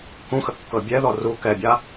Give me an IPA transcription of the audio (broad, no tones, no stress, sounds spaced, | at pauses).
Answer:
k ũ x ə kː ɤ bʲ ɛ ð ɔ r u k ɛ bʲ a